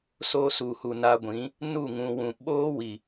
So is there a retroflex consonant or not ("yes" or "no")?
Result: no